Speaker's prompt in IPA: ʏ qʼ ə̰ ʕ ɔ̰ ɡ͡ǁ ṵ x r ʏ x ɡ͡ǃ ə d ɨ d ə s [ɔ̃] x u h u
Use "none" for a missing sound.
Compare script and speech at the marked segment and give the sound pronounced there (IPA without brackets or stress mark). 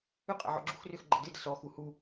ɔ